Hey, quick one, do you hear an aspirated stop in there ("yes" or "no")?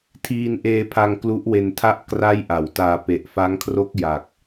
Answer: yes